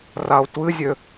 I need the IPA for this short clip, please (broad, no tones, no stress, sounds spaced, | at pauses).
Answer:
r a o̯ tʷ ɨ zʲ ø